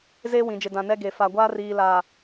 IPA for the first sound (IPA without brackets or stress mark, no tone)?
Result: z